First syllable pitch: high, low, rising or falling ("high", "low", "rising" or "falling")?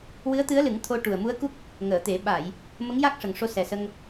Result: rising